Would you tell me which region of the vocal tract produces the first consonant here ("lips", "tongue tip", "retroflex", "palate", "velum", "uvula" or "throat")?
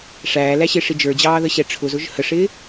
retroflex